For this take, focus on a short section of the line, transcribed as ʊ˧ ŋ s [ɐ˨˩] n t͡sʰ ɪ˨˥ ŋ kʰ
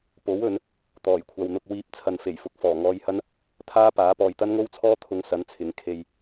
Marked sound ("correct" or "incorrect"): incorrect